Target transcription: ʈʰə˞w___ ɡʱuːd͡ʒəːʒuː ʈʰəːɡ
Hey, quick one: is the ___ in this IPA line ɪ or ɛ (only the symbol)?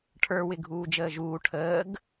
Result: ɪ